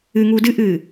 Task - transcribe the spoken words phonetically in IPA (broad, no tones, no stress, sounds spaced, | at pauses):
ɨ ŋ uː d ɨ ʔ ɨː